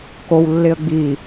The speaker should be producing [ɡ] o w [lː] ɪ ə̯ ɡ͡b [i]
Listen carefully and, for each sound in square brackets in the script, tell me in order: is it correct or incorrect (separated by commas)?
incorrect, correct, correct